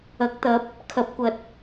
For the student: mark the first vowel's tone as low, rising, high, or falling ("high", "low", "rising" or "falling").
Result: rising